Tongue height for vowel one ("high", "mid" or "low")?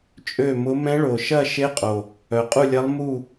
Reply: mid